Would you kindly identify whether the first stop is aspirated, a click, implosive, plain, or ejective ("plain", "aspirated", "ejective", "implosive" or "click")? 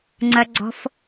click